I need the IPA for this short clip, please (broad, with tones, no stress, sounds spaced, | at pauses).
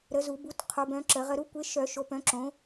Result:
ɾ ə˨˦ z u˨˩˦ b u˨˦ t qʰ o˨˦ b œ̃˨˦ ǁ ə˨˩˦ ʁ ə˨˦ ɾ u˨˦ kʷ e˨˦ ʃ œ˨˩˦ ʃ o˨˦ p œ̃˨˦ ǁ õ˨˦